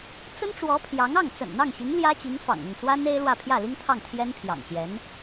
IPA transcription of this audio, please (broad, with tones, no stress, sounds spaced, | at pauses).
t͡s ə˥ n ʈ͡ʂ w ɔ˧˥ pʰ j ɑ˧˥ ŋ ɑ˥˩ ŋ t͡s ə̰˨˩ n n̪ ɑ˥˩ ŋ ɕ i˧˥ ŋ l j ä˥ t͡ɕ i˧˥ ŋ f ɑ̰˨˩ ŋ ʊ˥˩ ŋ t͡s w a˥ n e˥ ɪ̯ l w ä˥˧ pʰ j ä˥˩ l i˥ ŋ t̪ʰ ɑ˥˩ ŋ t̪ʰ j ɛ˥ n pʰ j ɑ̰˨˩ ŋ ɕ j ɛ˧˥ n